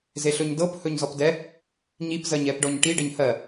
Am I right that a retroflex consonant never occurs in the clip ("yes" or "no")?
no